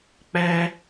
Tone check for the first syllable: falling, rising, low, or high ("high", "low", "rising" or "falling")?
high